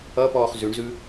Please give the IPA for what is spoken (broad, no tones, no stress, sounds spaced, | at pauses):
ʌ p ɔː χ z ʉ ɳ z ʉ